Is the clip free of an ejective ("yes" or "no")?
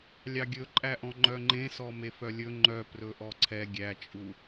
no